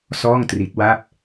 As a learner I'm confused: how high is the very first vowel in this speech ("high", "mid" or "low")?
mid